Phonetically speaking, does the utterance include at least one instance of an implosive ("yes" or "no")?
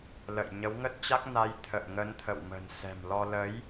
no